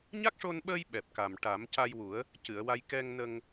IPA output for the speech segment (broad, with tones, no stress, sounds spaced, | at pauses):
ɲ a˦˥ k̚ ʂ o˧ n ɓ əː˧ j ɓ ɛ˨˩ p̚ k a˨˩ m ʈ a˨˩˦ m c a˧ j w u˨˩˦ ə̯ | c ɨ˨˩˨ ə̯ w a˧ j k ɛ˧ ŋ n ə˧ ŋ